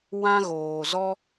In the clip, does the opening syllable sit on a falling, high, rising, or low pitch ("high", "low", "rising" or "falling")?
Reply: high